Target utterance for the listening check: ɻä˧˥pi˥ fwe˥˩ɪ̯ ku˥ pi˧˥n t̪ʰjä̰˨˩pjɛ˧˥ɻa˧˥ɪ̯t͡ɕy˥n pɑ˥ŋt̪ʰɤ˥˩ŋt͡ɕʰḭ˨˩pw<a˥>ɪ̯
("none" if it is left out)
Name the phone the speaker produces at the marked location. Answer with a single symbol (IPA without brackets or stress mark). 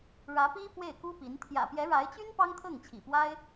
a˥